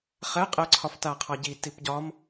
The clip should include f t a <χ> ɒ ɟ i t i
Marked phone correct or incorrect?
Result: incorrect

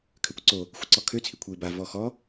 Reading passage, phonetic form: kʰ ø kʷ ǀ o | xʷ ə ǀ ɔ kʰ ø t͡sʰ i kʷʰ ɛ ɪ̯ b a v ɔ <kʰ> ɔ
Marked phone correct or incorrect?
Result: incorrect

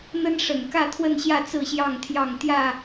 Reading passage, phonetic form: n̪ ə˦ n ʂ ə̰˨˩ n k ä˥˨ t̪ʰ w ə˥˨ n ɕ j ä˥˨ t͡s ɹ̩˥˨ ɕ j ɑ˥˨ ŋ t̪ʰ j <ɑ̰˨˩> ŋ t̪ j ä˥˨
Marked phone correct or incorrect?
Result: incorrect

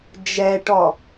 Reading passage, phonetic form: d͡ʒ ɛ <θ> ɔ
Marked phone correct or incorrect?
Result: incorrect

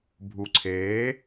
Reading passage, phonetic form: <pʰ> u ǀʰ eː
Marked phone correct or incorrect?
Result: incorrect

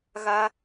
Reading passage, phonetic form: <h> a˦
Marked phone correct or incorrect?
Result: incorrect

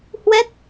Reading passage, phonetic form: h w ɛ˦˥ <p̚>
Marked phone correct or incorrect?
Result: incorrect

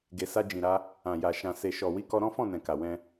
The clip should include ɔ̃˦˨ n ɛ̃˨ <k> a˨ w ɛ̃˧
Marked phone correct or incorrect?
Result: correct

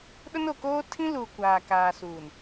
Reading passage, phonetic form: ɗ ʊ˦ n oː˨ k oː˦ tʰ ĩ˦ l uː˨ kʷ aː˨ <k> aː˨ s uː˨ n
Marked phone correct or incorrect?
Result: correct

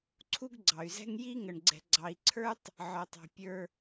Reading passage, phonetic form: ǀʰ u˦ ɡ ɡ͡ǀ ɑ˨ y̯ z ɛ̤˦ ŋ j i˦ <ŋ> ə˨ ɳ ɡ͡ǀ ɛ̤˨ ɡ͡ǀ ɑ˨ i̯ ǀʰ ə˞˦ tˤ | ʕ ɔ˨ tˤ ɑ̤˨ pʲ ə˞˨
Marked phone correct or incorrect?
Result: correct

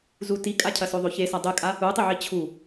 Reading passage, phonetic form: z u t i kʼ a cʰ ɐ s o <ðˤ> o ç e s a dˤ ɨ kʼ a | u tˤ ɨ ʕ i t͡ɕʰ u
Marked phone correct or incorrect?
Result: correct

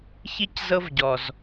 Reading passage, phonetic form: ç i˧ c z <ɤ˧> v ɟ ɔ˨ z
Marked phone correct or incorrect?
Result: correct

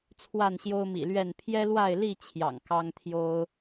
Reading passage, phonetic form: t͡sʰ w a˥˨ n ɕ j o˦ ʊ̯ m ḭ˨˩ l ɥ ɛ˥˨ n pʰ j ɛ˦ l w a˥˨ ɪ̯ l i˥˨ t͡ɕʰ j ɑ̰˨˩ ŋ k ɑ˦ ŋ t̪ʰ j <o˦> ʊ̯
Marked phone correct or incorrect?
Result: correct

